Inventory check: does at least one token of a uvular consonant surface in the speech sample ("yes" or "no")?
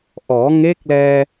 no